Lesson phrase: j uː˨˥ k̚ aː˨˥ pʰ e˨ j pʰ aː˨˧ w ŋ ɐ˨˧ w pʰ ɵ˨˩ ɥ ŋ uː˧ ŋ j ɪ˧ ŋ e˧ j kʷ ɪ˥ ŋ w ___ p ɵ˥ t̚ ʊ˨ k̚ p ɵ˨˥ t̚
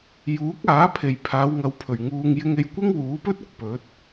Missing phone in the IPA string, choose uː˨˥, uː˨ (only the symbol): uː˨˥